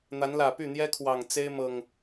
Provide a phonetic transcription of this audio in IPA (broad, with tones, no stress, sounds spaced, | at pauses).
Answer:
n̪ a˨˦ n l ä˨˩ p y˥˨ n̪ j ɛ˦ kʰ w ɑ˨˩ ŋ t͡s e˦ ɪ̯ m ɤ˨˩ ŋ